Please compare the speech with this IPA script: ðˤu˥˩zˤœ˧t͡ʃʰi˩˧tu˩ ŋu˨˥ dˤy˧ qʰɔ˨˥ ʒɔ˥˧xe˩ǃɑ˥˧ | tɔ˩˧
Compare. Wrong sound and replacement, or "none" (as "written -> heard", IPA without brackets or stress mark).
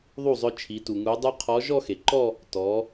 ɑ˥˧ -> ɔ˥˧